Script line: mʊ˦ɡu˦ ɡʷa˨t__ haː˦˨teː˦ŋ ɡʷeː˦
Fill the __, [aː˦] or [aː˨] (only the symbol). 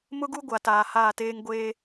aː˨